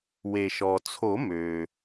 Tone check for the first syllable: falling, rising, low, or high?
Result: low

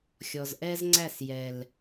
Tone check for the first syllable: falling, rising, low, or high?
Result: low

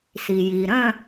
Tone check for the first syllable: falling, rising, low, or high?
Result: low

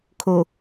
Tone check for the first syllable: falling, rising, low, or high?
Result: low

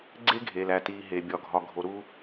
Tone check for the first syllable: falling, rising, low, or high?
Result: high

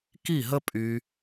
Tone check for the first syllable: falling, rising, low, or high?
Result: falling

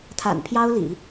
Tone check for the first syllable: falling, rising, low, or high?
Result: low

